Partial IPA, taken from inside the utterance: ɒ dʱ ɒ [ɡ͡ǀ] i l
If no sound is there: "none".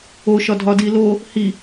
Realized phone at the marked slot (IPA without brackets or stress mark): d